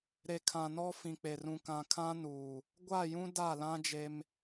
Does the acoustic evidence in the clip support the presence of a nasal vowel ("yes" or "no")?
yes